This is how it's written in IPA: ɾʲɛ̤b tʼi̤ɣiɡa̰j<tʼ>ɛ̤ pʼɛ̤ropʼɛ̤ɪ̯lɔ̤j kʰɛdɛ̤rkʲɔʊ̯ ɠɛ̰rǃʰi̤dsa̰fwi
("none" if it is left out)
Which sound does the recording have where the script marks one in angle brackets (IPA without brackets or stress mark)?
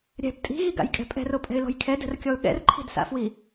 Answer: kʼ